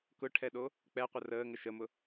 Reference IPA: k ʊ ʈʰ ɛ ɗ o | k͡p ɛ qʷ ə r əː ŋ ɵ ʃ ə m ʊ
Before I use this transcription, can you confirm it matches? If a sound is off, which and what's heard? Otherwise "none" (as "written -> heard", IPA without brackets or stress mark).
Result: ɵ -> ə